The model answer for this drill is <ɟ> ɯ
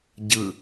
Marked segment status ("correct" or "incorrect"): correct